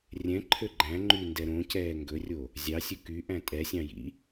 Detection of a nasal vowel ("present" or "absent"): present